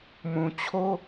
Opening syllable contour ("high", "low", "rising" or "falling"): low